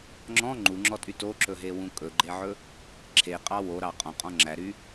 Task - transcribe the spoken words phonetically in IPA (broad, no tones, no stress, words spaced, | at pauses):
ŋ͡ǁɔ̃ ŋ͡ǃuŋ͡ǁɔtʼy toǁɵɦewũ kʼɵɡ͡ǃeʕɵ | ǁʰeqʼɑ woɾɑ qʼɔ̃qʼɔ̃ ŋ͡ǁæɾy